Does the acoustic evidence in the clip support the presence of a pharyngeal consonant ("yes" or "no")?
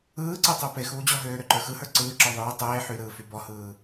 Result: yes